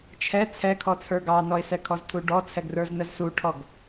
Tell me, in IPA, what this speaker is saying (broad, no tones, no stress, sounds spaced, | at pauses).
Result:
t͡ʃʰ ɛ t͡sʰ ɛ kʰ ɔ t͡sʰ ə˞ ɡ ɑ n ɔ ɪ̯ s ɛ kʰ ɔ z tʰ u ɖ ɔ t͡sʰ ɛ ɡ r ə˞ z n ə z s u ʈʰ ɔ ɡ